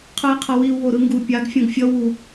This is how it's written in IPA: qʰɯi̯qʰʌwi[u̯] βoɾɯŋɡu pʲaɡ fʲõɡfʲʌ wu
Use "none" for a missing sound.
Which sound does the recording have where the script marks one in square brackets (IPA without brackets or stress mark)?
u̯